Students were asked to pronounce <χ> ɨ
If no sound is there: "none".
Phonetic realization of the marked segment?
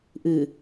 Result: ʔ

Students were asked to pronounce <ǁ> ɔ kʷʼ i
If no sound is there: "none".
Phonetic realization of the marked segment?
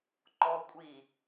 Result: ǃ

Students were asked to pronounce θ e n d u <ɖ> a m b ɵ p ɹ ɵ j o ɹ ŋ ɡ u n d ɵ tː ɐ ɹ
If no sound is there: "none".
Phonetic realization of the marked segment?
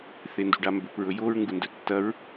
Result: ɖ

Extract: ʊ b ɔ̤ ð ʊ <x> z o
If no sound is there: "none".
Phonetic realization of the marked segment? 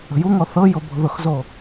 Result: x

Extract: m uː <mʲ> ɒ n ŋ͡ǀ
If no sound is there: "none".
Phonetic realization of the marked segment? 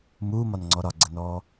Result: m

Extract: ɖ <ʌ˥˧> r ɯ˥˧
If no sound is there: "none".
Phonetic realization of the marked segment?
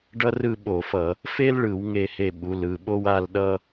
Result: ʌ˥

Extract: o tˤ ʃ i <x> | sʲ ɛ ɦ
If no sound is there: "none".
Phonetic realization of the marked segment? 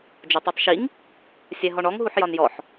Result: ŋ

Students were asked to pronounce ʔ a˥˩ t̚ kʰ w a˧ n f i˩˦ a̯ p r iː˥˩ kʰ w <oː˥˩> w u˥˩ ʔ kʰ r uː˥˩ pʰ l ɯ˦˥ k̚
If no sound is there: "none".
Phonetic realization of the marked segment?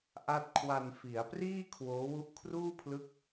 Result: oː˦˥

